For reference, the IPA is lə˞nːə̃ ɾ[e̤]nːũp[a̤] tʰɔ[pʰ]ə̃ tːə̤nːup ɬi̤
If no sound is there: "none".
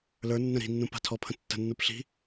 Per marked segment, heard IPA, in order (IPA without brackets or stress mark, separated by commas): i̤, a̤, pʰ